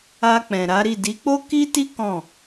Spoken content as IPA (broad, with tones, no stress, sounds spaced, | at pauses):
a˧ k͡p ɛ̃˨ ɾ a˨˦ ɾ i˦˨ d i˨˦ k͡p o˦ k i˦ t i˦ k ɔ̃˦˨